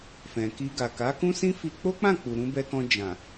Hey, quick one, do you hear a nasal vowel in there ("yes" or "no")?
yes